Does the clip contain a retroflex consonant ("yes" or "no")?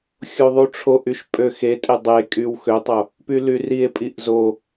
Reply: yes